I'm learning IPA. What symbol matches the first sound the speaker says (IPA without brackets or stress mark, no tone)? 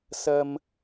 s